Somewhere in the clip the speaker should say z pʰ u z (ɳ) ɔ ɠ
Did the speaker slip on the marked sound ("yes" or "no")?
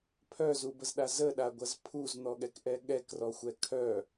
yes